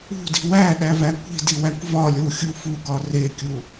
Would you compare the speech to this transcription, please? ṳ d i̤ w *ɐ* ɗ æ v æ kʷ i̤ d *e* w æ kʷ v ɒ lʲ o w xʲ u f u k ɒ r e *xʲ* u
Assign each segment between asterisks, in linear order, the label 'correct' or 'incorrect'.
incorrect: æ, incorrect: i, incorrect: kʲ

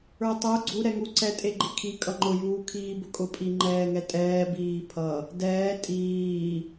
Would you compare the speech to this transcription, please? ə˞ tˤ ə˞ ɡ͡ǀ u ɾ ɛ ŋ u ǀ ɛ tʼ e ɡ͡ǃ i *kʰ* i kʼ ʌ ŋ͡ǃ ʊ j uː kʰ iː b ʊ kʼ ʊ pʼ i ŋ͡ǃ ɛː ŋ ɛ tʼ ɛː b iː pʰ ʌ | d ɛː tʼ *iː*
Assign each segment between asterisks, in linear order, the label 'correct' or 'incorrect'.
correct, correct

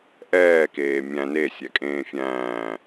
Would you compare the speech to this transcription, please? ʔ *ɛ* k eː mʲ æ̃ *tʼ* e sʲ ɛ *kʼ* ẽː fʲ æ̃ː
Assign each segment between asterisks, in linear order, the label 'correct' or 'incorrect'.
incorrect: ɛː, incorrect: n, correct

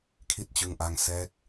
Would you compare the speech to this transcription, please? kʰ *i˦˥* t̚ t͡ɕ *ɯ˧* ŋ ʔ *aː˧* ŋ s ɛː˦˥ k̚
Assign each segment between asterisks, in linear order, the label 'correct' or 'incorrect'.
correct, correct, incorrect: a˧

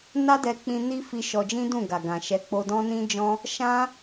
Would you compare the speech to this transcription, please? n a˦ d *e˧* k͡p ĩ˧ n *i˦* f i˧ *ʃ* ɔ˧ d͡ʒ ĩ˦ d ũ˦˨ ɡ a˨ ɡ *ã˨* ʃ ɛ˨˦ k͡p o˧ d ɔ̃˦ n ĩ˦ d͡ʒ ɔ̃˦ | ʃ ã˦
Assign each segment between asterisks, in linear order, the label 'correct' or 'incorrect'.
incorrect: ɛ˧, correct, correct, correct

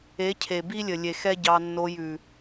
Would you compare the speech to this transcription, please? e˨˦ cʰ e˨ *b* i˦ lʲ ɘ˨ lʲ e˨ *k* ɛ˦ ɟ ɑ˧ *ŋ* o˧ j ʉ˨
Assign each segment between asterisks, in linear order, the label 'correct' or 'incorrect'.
correct, incorrect: x, incorrect: nː

